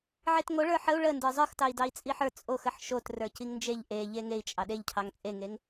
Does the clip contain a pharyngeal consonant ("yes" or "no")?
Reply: yes